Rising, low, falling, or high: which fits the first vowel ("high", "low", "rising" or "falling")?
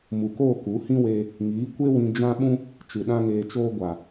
low